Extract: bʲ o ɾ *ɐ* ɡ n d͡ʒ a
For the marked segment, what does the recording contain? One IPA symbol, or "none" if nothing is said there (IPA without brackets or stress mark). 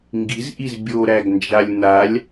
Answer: æ